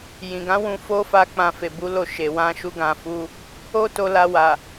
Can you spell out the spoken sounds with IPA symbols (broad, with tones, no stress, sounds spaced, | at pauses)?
j ĩ˨ ɡ ã˨˦ w ũ˧ f o˦ f a˧ k͡p ã˧ f e˨ b u˨˦ l o˧ ʃ e˨ w ã˧ ʃ u˧ ɡ ã˨ f u˧ | o˦ t o˧ l a˧ w a˨